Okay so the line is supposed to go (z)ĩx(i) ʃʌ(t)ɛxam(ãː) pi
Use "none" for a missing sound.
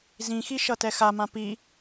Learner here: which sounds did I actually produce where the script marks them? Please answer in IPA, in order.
z, i, t, ã

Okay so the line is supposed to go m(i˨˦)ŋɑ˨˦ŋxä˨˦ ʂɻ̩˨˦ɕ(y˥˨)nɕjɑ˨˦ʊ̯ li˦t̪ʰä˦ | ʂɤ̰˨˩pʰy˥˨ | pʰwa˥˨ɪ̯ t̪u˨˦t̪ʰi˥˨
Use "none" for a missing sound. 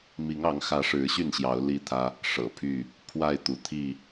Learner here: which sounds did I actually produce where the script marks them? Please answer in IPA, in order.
i˨˦, y˥˨

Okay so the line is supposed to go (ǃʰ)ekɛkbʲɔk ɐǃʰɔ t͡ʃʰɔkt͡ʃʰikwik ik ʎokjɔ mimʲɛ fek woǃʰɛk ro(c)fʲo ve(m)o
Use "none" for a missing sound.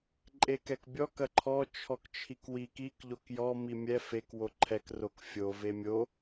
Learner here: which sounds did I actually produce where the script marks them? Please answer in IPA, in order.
ǃʼ, k, mʲ

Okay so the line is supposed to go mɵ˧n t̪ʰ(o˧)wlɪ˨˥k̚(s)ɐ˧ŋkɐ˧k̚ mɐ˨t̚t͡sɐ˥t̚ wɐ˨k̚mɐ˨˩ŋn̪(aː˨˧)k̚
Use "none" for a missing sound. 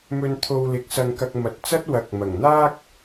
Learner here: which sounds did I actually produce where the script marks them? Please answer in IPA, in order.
o˧, s, aː˥

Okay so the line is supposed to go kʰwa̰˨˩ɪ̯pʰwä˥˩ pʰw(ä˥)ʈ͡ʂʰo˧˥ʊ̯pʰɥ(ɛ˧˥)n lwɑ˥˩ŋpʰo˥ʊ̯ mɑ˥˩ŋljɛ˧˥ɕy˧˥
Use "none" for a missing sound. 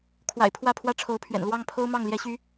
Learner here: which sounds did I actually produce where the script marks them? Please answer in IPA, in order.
ä˥, ɛ̰˨˩

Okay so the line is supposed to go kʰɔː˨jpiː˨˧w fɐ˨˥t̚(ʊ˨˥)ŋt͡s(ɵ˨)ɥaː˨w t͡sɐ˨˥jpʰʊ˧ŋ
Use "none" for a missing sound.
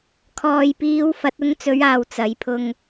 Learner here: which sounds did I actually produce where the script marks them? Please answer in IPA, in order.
ʊ˧, ɵ˨˧

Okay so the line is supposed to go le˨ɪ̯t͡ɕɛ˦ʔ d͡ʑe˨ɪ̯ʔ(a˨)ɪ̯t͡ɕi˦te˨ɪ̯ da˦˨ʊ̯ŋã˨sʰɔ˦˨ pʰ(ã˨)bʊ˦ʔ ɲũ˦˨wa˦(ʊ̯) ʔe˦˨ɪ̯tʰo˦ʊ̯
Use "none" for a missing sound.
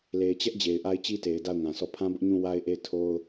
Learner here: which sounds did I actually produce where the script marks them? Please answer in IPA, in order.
a˦, ã˦, ɪ̯

